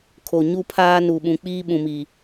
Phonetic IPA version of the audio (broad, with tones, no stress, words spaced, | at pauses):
kʰo˨ɲu˦pʰaː˦ nu˨ɓũ˨k͡piː˦ ɓũ˨miː˨